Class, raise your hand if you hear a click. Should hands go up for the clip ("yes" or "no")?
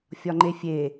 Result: yes